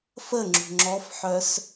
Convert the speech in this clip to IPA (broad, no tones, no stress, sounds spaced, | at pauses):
f ə ŋ͡ǁ ṳ ŋ͡ǁ ɔ f ħ œ s